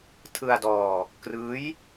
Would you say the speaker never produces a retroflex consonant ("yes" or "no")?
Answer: yes